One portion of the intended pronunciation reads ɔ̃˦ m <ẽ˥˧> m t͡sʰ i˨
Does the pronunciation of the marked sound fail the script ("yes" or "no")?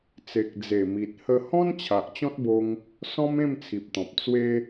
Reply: no